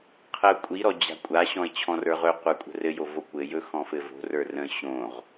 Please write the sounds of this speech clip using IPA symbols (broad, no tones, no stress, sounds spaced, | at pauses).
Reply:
qʰ ə ʊ̯ kʷʼ i ɾ ɔ d͡ʑ a̤ kʷʼ a ɕ ɔ̃ ɪ̯ t͡ɕʰ ɔ̃ r ə˞ ʁ ɵ qʷ ə˞ kʷʼ ə̤ r ɘ j o v o kʷ ɘ j ɵ x ɔ̃ f ɘ v o̤ r ə˞ r ə̃ ɕ õ ʁ